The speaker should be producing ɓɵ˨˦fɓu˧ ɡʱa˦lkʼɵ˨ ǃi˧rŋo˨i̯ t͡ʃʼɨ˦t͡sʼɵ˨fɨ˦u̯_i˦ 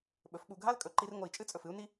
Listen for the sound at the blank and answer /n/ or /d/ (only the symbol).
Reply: n